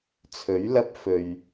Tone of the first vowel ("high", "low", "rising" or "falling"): rising